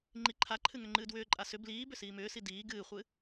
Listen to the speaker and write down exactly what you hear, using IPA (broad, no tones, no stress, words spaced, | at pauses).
ŋ͡ǃiǃʰaǃʰɨ ŋʏŋ͡ǃɨːdwʏːǃʼa sʏ bliː bʏsiːmʏːsi diː ɡɨːχʷɨ